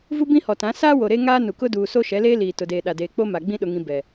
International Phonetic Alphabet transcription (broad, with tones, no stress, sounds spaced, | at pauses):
v u˦ b ĩ˦ h ɔ˨ t ã˨˦ s aː˦ w o˨ ɾ e˦ ŋ aː˦ n u˨ k ʊ˦ d uː˨ s o˦ ʃ ɛ˨˦ l eː˦ l iː˨ t ʊ˨ d eː˨ ɗ a˨ d eː˨ k͡p o˦ m a˨ ɡ͡b ĩ˦ ɗ ʊ˨ ŋ ĩ˨ b ɛ˨